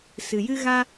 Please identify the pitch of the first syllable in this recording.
low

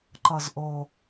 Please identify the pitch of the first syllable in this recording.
low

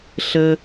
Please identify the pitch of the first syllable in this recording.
high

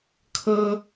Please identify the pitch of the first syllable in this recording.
high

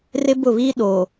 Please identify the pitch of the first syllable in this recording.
high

